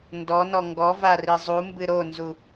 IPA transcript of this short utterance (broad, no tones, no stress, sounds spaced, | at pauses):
n d ɔ n ɔ ŋ ɡ ɔ v a r i zˤ u m b ɨ ɾ o n z u